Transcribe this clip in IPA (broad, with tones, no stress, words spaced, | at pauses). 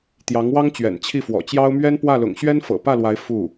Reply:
t̪jɑ˧˥ŋwɑ˥ŋt͡ɕɥɛ̰˨˩n t͡ɕʰi˥˩fwɔ̰˨˩t͡ɕjɑ˥ʊ̯ mɥɛ˥npwä˥˩lʊ̰˨˩ŋ ɕɥɛ˥nfɤ̰˨˩pä˥˩lwa˧˥ɪ̯ fu˥˩